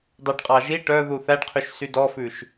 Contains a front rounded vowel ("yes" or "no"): yes